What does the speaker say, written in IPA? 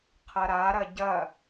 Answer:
qʰ ɐ ɾ a ɾ ɐ ɟ ɐ

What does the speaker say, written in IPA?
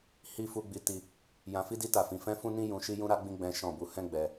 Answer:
h i˦ f u˧ ɡ͡b i˧ t i˧ | j ã˧ f i˦ d i˦ t a˦˨ f ĩ˧ f ɛ̃˦ f ũ˦ n ĩ˦ j ũ˧ ʃ i˦ j ũ˦ ɾ a˦ ɡ͡b ĩ˦ ɡ͡b ɛ̃˦ ʃ ɔ̃˦˨ b u˧ h ɛ̃˦ ɡ͡b ɛ˧

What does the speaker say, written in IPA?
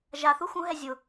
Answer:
ʒ a θ u x ũ ɦ ɛ zʲ ʊ

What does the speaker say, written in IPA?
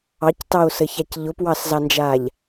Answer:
ɑ c t ɑ o̯ s ə ç a c ʎ ʊ p w ɑ s z ɑ n d͡ʒ aː ʎ

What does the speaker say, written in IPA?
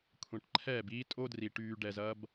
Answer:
kʷʰ ɛ̃˨ ʈ ǃʰ ɛː˦˨ b iː˦ tʼ o˦ d r i˨ ʈ yː˨ ɖ ɛ˨ z ɐ˧ b

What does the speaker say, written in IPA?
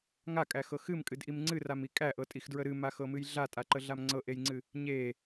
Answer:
ŋ a kʼ æ x ɤ x ɨ m kʼ ɨ d ʔ i m ŋ͡ǀ ɨ r a m i kʼ æ ʔ ɤ tʼ i x d ɹ ə ɾ ɨ m a x ɤ m ɨ j ɮ a tʼ a ǃ ə ɮ a m ŋ͡ǀ ɤ ʔ e j ŋ͡ǀ ɨ | ɲ e

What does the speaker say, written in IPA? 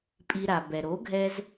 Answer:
pʼ i˧ ɾ a˩ b ɛ˩ ɾ o˩˥ ɡʱ ɛ˧ z

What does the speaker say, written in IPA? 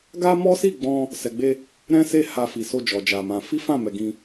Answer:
ɡ a˦ m ɔ˦ s i˦˨ ɡ͡b ɔ̃˧ | s ɛ˨ ɡ͡b e˧ | ɾ ɛ̃˦ s e˦˨ h a˧ f i˨ s o˧ d͡ʒ ɔ˨ d͡ʒ a˨ m ã˧ f i˦ f ã˦˨ m ɛ˨ ɡ ĩ˧

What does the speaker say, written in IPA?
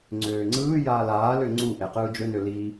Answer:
ŋ͡ǀ øː ŋ͡ǀ ɯː j aː l aː l ø ŋ͡ǀ u ʔ e q ɯː d͡ʒ ø n ø l i

